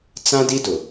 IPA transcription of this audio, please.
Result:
t͡sã˦di˦dʊ˨

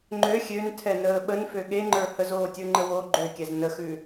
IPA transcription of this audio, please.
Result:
ŋ͡ǃø xʲøntʰɛnəː ɓənfø ɠeŋ͡ǃə˞ həzoːtʲə˞ŋ͡ǃə wo ɡ͡ǃøkʲɛz nəxʉ

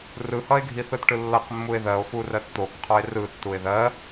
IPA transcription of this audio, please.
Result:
rɯhʌe̯ ɡʱiθɯtʈɯlːʌq mːue̯ðɜo̯ furɜtt̪okqʰɔe̯ rɯ tːue̯ðɜ

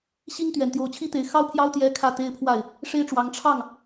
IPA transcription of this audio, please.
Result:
ɕi˥ŋ t̪ɥɛ˨˩nt̪jo˧˥ʊ̯t͡ɕʰi˥t̪e˧˥ɪ̯ xɑ˥ʊ̯pʰjɑ˥ʊ̯ t̪jɛ˥kʰä˥˩t̪e˥ɪ̯pʰwa˥˩ɪ̯ | ʂe˥ɪ̯ʈ͡ʂwɑ˧˥ŋ ʈ͡ʂʰɑ˥˩ŋ

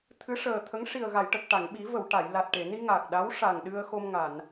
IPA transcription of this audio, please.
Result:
t̪ʰɨ˧˥ʂəː˨˩t̪ʰə˧˥ŋ ʂi˨˩ə̯ɣa˨˩˨jʈə˨˩k̚ ʈa˨˩˨ŋ ɓi˨˩˦ və˨˩˨w ʈa˨˩˨jla˨˩t̚ ʈe˨˩˨ni˧ ŋa˨˩k̚ɗa˧˥wʂa˨˩ŋ ɗɨ˧ə̯xo˧m ŋa˨˩˨n

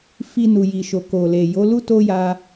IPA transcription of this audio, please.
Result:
fi˧ nu˨ji˨ʃo˨ ko˨le˨ jo˨˦lu˦ to˦ja˧

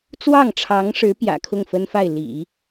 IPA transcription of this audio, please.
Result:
t͡swɑ˥˩ŋʈ͡ʂʰɑ˧˥ŋʂɻ̩˧˥ pjä̰˨˩kʰʊ˥˩ŋfə˥nfa˥˩ɪ̯ lḭ˨˩˦

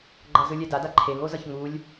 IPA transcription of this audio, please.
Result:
ɡ͡ǃʌzɯlʲɛ dada ǃʰeŋozʌç ŋulʲ

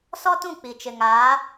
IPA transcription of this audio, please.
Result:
sɔ˦tũ˦˨ k͡pi˨t͡ʃɪ˨ŋ aː˨˦

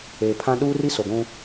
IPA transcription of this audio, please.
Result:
eː˨pʰã˦ ɗuː˦ri˦ so˨ɡʷũ˦

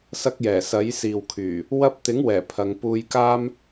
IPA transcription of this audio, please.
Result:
sɐ˧k̚jɛː˨˩ sɐ˨˥jsiː˨wkʰyː˨˩ | wɐ˧p̚t̪ɪ˨˥ŋwɛː˨˩ pʰɐ˨˧ŋ puː˧jkaː˥m

